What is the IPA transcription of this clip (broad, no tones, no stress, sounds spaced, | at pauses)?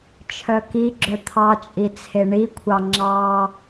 t͡ʃʰ œ k i ɡ͡ǁ œ t̪ʰ ɑ t͡ʃʼ i t͡sʰ e ɳ i kʷʰ ɑ ŋ͡ǁ ɑ